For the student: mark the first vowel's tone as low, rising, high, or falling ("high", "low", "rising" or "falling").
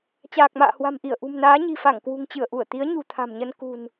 low